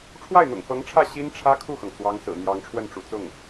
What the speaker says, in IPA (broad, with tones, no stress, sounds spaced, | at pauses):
ʈ͡ʂʰ w a˥˩ ɪ̯ n̪ ʊ̰˨˩ ŋ f ɤ˧˥ ŋ ʈ͡ʂʰ ä˥˩ ɕ i˥ n ʈ͡ʂʰ ä˥ kʰ u˥˩ x ɤ˩ ŋ t͡s w ɑ˧˥ ŋ s ɹ̩˨˩ n̪ j ɑ˧˥ ŋ ʈ͡ʂʰ w ə˥˩ n ʈ͡ʂ ṵ˨˩ t͡s ʊ˥˩ ŋ